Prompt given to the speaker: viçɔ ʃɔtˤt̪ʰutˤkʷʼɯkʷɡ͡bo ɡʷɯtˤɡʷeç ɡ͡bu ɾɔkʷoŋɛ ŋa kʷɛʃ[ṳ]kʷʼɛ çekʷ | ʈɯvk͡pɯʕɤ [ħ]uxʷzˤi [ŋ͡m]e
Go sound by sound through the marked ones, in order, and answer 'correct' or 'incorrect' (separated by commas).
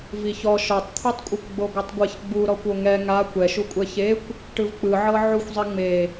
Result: incorrect, incorrect, correct